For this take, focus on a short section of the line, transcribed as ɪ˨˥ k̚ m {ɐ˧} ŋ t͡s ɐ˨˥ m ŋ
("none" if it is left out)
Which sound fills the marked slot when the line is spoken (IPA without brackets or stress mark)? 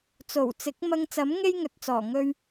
ɐ˧